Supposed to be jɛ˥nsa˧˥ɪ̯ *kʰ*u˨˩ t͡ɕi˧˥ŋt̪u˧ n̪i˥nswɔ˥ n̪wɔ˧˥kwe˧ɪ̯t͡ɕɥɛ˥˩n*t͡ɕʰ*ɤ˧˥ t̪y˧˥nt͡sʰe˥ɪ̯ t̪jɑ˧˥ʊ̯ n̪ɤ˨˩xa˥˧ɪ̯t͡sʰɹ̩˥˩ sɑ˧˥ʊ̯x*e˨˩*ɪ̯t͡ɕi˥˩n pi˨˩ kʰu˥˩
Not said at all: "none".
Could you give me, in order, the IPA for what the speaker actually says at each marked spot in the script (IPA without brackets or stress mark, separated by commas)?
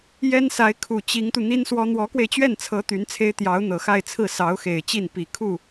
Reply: kʰ, t͡sʰ, e˨˩